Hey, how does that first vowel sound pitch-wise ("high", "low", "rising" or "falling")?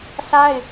high